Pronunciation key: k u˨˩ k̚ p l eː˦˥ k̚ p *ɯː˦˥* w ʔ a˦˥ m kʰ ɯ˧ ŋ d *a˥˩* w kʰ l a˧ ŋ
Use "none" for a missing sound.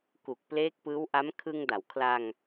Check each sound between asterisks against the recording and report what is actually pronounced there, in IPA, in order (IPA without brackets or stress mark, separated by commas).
ɯː˦˥, a˩˦